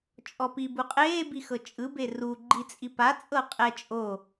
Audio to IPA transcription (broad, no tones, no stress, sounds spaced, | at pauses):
t͡ʃʼ ɔ p i b u qʼ eː b i x ɤ t͡ʃʼ ɯ b e r u ɡ͡ǃ i t͡sʼ i p a t͡sʼ ɤ qʼ ɛ t͡ʃʼ o